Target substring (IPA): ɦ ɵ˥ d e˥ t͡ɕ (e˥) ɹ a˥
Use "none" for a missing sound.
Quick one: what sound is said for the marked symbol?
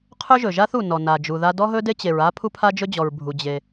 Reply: e˩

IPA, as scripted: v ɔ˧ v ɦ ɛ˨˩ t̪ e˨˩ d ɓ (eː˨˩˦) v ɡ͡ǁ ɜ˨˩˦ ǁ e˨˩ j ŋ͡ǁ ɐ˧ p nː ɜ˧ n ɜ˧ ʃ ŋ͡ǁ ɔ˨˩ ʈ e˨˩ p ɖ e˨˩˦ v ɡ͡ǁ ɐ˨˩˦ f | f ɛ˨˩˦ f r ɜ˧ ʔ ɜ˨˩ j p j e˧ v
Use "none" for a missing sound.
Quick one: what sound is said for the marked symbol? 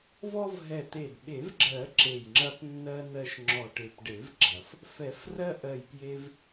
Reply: e˨˩˦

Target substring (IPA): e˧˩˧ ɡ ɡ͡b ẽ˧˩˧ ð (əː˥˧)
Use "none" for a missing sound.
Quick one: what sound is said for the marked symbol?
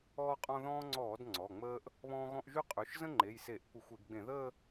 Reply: əː˥˧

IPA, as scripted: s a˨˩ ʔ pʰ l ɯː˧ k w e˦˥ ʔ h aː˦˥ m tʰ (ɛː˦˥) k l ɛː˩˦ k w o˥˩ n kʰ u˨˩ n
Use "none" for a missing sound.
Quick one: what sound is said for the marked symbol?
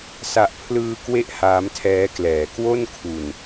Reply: ɛː˦˥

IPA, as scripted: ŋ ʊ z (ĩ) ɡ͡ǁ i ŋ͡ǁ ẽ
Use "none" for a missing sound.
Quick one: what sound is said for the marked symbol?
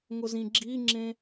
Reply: ĩ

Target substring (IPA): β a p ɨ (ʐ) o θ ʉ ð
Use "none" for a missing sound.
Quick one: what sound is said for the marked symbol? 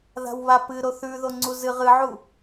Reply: ɾ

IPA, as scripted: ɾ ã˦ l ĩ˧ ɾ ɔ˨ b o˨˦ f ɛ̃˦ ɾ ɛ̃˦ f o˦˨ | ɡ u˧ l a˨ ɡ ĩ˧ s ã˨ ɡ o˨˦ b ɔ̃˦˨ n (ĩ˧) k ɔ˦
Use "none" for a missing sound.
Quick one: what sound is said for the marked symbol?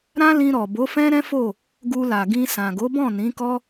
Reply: ĩ˨˦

